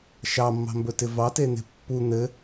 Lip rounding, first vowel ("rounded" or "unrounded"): unrounded